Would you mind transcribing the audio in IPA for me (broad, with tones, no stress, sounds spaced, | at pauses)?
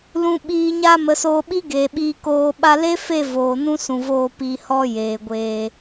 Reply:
l ũ˨ ɓ iː˨ ɲ a˧ m ə˨˦ s oː˧ ɓ i˦ ɡ eː˨ ɓ iː˧ k oː˧ ɓ a˧ l e˦ f e˦˨ v oː˨ n ũ˦ s ũ˨ v oː˧ p i˧ h ɔ˦ j eː˨ ɡʷ eː˧